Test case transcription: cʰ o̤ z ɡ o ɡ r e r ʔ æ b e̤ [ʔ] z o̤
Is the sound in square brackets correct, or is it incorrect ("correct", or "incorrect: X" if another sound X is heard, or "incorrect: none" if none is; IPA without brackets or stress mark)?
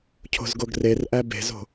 incorrect: none